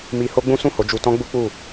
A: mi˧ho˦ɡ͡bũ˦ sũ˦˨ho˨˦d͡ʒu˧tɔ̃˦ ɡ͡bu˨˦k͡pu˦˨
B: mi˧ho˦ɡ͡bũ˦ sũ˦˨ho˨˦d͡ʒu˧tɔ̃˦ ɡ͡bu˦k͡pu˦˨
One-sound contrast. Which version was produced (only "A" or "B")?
B